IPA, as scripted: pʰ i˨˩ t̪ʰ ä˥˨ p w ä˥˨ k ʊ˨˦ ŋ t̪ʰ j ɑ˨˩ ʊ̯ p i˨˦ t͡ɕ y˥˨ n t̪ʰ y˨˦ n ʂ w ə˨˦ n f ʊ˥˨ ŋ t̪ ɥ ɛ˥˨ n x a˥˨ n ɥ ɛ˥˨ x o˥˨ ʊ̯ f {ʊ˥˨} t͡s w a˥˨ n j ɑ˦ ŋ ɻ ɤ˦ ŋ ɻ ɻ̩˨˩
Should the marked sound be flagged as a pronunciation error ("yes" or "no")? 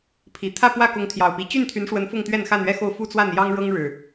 yes